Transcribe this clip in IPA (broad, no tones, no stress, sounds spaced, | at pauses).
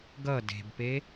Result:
ɡ ʌ d e̤ b p e